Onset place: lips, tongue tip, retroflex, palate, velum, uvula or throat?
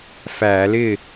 lips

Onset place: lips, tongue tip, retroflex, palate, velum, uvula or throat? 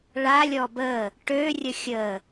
retroflex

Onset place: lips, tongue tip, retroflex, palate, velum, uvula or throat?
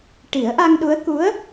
retroflex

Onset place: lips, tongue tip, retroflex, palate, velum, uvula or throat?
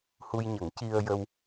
throat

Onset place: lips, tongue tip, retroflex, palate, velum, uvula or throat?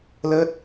tongue tip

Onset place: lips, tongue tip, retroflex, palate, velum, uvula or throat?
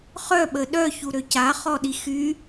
uvula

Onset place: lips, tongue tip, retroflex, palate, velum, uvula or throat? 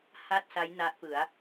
throat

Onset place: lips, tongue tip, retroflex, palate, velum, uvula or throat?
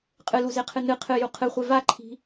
uvula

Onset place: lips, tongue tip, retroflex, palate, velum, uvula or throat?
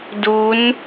tongue tip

